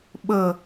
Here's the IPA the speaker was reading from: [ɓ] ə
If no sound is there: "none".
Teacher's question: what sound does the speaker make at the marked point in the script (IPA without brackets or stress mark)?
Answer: ɓ